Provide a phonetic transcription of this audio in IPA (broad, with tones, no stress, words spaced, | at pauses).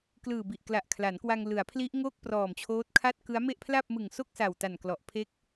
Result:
klɯː˨˩bi˨˩ʔ kla˨˩ʔkʰla˩˦nkwa˧ŋ lɯ˩˦a̯pʰli˦˥ʔŋo˥˩k̚ prɔː˨˩mt͡ɕʰoː˦˥t̚kʰa˥˩t̚ kɯ˦˥a̯me˥˩ʔ pʰla˥˩p̚mɯ˨˩ŋso˥˩k̚ sa˨˩wta˨˩nklɔ˨˩ʔ pʰe˦˥k̚